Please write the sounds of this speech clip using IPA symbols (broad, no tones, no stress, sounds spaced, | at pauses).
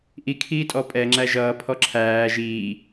ʔ i kʰ iː tʼ ɔ pʼ ɛ ŋ͡ǁ æ ʒ ʌː pʰ ɔ ǁʰ æː ʒ iː